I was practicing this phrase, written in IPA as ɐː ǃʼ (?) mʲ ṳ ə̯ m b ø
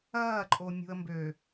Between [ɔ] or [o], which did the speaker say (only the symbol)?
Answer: o